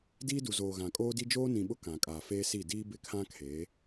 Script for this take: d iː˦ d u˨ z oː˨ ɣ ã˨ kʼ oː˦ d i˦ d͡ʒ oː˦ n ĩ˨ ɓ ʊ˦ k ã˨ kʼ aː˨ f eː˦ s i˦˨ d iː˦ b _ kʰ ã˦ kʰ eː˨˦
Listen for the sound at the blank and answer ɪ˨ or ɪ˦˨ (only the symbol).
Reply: ɪ˦˨